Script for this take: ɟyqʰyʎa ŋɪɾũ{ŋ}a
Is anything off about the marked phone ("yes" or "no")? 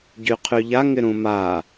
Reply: yes